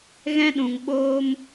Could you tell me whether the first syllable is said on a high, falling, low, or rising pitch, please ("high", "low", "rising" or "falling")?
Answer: high